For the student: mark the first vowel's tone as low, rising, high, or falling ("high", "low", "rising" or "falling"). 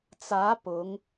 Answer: rising